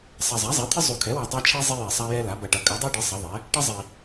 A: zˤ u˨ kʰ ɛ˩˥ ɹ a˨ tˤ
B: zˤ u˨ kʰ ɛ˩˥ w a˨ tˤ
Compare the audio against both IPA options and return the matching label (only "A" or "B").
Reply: B